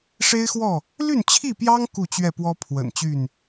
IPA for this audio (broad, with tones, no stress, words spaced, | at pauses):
ʂe˦ɪ̯xwɔ˥˨ | ly˥˨nt͡ɕʰi˥˨pjɑ˦ŋ ku˥˨t͡ɕɥɛ˥˨pwɔ˦ pʰwə̰˨˩nt͡ɕy˥˨n